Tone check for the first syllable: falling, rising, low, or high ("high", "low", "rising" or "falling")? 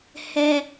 high